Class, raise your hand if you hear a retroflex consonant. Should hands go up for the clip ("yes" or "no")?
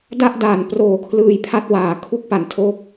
no